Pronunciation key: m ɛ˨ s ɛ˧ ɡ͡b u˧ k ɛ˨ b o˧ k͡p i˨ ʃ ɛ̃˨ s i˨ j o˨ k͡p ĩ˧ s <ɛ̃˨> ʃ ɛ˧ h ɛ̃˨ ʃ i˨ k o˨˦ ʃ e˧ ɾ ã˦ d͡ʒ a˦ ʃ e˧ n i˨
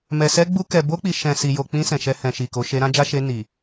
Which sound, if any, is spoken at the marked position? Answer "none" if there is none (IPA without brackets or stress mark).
ɛ̃˨